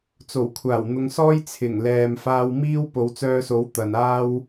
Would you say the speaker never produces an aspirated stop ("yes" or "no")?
no